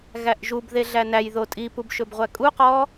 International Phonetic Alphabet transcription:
ɣ æ ʔ ʒ u b ð e ɮ æ n æ j ð o tʼ i p u b ʃ ɵ b ʁʷ æ kʼ u q ɔ

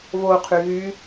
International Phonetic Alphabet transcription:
v o qʰ y ɣ y

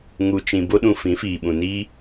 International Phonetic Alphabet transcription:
ŋ u˨ t͡ʃ ĩ˨ b o˦ ɗ ũ˧ f ĩ˨˦ f iː˨ ɓ ũ˨ n iː˦

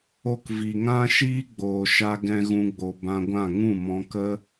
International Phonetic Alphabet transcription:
o˧ k v i˨ ŋ ã˦ ʃ iː˦ ɡ͡b oː˨ ʃ a˧ ɡ ɛ̃˦ ɣ ũ˦ ɡ͡b o˧ b ã˧ ɡʷ ã˦˨ ŋ ũ˦˨ m ɔ̃˧ k ə˦

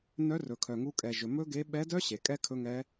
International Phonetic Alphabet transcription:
n œ˧˥ r ɵ˩ kʰ œ˩ ŋ u˧ kʼ ɛ˩ ʒ ɵ˩ m ɵ˥ ɡ e˧˥ ɓ ɛ˧˥ d œ˥ ɕ e˩ kʼ ɛ˥ kʰ ɵ˧˥ ŋ ɛ˧˥

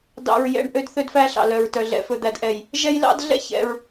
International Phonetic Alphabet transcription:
d ɑ̰˨ ɹ j ɛ̰˨ ɳ ʔ ø˦ d θ ø˦ d f æ˦ ɬ ɑ̰˨ l œ˨ ɹ t œ˨ ɮ ɛ̰˨ f ɵ˨ d̪ æ˨ d ʔ ɛ˨ j | ʒ ɛ˦ j l ɑ̰˦ d ɮ ɛ̰˦ ç ɛ̰˨ ɹ

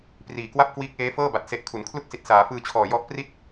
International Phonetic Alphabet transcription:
p r iː˨˩ k w a˥˩ p̚ k w iː˦˥ k̚ ʔ eː˦˥ f ɤː˥˩ b a˨˩ t̚ s e˨˩ ʔ kʰ u˩˦ n kʰ l u˥˩ k̚ s i˨˩ t̚ s aː˩˦ f ɯː˧ t͡ɕʰ ɔː˨˩ j ɔ˦˥ ʔ p r i˥˩ t̚

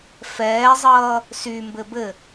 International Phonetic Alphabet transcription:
f ɛː zˤ ʌː | s y m b ɘ b ɘ

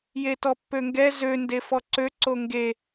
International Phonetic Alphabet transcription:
j e t ɔ pː ø ŋ ɡ ɛ z ø n d e f ɔ ǀ ø ǀ o ŋ ɡ e

